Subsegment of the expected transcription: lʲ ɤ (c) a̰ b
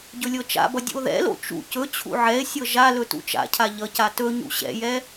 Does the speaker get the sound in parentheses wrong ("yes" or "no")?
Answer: yes